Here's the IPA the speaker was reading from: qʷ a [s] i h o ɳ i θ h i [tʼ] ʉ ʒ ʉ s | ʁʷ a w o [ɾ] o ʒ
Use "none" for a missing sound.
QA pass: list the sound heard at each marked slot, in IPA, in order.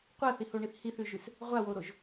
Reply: θ, θ, ɾ

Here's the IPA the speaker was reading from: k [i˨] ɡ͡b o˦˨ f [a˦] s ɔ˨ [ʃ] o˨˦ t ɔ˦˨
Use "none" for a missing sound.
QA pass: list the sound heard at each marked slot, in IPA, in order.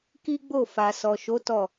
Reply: i˦, a˨, ʃ

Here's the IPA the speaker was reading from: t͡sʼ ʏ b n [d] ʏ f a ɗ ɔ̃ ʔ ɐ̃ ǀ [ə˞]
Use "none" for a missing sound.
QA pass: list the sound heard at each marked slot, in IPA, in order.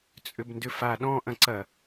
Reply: d, ɐ

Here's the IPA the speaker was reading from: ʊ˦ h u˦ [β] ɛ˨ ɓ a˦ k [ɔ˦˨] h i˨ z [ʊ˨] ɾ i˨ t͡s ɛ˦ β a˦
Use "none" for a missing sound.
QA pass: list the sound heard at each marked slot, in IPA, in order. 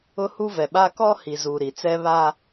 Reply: v, ɔ˦, u˨

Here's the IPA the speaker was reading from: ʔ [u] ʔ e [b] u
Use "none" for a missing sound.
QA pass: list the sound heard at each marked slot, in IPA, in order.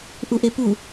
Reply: u, p

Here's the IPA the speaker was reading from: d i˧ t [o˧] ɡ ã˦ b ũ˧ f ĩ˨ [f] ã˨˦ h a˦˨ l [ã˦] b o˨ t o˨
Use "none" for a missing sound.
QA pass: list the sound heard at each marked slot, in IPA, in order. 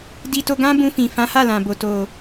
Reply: o˧, f, ã˨

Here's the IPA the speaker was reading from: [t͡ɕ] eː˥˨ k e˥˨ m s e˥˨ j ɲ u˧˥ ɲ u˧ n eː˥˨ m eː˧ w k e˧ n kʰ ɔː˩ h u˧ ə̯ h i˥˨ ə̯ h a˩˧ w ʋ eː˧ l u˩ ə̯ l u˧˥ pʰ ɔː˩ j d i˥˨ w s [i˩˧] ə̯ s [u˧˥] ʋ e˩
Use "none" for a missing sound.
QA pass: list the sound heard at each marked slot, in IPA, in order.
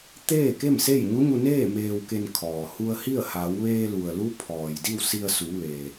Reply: t̪, i˧, u˩˧

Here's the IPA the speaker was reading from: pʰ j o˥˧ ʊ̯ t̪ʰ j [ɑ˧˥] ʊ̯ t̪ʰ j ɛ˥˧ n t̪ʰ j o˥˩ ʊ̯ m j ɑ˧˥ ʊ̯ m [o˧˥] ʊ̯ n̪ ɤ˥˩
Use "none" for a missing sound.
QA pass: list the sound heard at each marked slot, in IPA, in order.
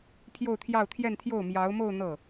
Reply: ɑ˥˧, o˥˧

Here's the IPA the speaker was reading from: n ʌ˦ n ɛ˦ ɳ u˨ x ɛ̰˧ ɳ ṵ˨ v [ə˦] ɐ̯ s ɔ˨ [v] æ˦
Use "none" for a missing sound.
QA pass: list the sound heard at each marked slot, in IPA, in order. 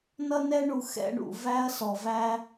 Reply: æ˦, v

